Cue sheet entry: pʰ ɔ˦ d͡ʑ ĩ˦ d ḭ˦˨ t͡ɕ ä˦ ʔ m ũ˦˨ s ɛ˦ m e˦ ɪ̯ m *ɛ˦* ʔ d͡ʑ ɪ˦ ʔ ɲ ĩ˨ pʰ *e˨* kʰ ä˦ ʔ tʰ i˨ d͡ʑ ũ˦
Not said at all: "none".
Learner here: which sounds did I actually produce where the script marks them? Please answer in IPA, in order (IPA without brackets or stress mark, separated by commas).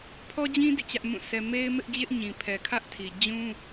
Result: ɪ˦, ɛ˨